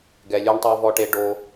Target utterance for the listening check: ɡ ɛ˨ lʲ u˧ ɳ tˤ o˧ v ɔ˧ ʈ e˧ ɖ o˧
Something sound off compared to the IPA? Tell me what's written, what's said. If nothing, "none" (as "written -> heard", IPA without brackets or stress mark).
none